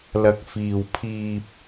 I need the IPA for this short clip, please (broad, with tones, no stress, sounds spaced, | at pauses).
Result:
l ɐ˧ k̚ f iː˧ w pʰ iː˧ p̚